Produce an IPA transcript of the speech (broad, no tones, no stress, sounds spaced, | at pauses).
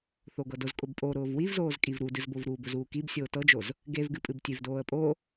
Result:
θ o ɡ ɤ d ʊ z kʼ ʊ b pʼ o ɾ ʊː v w i v z oː z kʼ i v ɾ u d ɨ z b o v ɾ uː b ʊ z uː k i b sʲ oː t ɤ d͡ʒ o z | ɡ e v ɡ ɨ pʼ ɨ b tʲ e v d oː ə̯ pʼ o